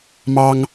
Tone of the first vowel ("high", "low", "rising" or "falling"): high